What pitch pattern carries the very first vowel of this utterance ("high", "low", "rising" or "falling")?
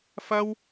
high